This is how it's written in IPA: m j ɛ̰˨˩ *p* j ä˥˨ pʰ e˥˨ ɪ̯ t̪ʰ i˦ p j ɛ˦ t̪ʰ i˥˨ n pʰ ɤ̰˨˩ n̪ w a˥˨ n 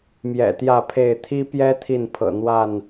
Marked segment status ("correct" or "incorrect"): incorrect